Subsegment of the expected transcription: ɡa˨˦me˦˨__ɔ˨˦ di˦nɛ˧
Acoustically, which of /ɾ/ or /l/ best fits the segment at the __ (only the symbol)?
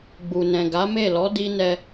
l